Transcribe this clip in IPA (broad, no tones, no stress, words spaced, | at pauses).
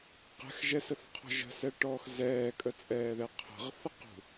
qɛ̤xʒɛsəθqʰɔ̤ ʒə̤sɛʈɔːx zɛːkʼət͡sʼɛːðɛ qʰə̤ʁθəqṳ